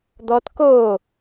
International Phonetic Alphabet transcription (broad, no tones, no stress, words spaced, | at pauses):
d̪ɔt ko